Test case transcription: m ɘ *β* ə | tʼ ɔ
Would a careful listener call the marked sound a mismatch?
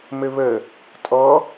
no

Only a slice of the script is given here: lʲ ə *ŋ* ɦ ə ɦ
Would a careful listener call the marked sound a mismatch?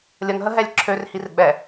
no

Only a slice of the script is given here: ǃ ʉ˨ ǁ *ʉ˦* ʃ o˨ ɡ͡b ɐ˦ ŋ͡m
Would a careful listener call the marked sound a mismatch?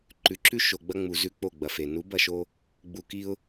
no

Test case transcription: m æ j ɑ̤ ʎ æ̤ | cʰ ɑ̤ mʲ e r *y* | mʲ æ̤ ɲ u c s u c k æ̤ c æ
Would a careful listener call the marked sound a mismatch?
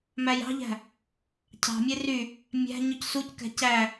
no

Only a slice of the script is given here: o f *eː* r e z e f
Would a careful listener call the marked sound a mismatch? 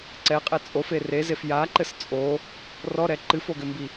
yes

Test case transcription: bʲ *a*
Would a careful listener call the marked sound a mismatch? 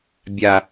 no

